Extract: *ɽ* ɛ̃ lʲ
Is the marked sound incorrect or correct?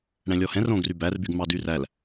correct